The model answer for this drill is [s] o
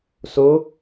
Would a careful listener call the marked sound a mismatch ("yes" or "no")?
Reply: no